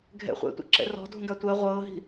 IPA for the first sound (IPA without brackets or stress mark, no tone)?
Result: ɡʱ